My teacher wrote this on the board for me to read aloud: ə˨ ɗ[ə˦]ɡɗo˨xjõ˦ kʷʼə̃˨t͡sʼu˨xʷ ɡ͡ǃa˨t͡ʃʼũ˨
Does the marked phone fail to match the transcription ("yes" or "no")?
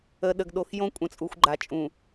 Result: yes